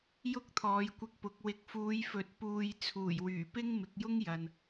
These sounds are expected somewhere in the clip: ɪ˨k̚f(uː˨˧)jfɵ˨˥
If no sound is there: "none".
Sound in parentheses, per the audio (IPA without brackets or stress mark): uː˨˧